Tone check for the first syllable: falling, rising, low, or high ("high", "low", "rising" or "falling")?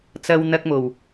high